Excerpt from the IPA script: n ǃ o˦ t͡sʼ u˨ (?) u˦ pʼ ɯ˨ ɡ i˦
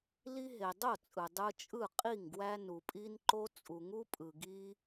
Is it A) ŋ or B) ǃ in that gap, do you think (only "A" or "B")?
A